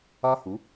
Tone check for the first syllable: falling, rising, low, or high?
high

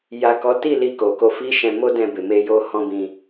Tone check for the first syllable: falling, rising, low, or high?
low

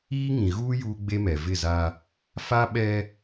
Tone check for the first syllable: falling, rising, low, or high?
high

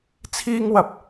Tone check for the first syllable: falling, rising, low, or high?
high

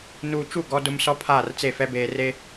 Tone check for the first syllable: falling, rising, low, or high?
low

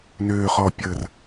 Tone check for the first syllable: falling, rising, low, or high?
low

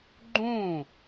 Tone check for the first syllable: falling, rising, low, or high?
falling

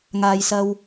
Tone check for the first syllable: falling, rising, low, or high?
low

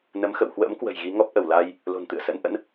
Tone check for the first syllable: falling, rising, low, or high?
rising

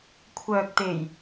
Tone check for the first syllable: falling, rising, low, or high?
low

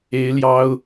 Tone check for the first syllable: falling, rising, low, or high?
rising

